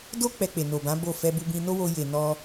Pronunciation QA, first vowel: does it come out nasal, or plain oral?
oral